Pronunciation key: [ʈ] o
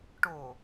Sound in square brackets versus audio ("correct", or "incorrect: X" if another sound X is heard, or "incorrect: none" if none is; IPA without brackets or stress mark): correct